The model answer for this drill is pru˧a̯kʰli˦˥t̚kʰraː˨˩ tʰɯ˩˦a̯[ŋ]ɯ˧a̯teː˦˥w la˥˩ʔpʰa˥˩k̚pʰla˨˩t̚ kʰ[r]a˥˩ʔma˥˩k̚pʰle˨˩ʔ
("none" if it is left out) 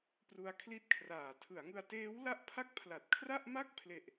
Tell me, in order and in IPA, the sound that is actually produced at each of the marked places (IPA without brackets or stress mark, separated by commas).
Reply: ŋ, r